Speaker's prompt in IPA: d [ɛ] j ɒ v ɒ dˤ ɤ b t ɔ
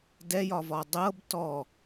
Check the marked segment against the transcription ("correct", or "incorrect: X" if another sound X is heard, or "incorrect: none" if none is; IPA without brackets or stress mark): correct